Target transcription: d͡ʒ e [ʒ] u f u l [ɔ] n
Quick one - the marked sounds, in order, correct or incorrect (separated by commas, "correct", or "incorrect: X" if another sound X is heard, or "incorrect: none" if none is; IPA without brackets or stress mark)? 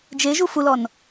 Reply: correct, correct